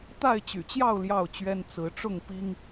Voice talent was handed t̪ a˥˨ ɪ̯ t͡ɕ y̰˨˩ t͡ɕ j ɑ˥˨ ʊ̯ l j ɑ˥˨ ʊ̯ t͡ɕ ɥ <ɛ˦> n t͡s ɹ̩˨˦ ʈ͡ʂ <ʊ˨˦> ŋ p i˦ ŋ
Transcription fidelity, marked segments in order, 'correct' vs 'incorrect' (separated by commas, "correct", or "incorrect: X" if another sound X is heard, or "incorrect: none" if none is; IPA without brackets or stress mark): correct, incorrect: ʊ˥˨